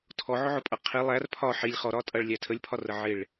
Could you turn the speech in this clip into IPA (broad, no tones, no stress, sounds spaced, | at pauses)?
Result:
tʰ ɔ ʕ ʊ ʕ ʊ pʼ ʌ qʰ i lˠ æ r pʰ ɒ ħ i lʲ χ ɔ ɾ ɒ tʼ ʌ ɭ lʲ æ tʰ ə lʲ pʰ ɒ r ə ʕ ɪ ɭ